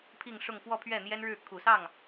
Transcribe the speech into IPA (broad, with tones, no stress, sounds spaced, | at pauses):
pʰ i˥˧ ŋ ʂ ʊ˥˧ ŋ f w ɔ˥˧ pʰ ɥ ɛ˥˩ n̪ j ɛ˥ n ɻ ɻ̩˥˩ kʰ u˨˩ s ɑ˥˩ ŋ